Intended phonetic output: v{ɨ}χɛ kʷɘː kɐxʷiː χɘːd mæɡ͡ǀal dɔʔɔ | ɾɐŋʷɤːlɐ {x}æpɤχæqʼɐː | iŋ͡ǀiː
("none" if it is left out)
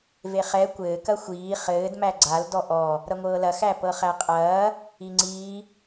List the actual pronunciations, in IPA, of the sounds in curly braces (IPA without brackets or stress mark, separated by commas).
e, x